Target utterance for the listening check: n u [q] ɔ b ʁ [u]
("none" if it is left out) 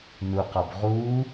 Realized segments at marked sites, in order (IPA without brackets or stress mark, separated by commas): q, u